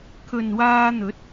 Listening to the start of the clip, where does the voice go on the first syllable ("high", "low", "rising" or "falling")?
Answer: low